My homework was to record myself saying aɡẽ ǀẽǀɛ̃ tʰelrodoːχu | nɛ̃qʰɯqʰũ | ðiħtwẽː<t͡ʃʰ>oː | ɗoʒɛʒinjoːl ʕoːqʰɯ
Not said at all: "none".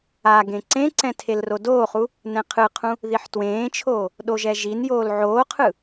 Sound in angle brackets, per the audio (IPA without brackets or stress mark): t͡ʃʰ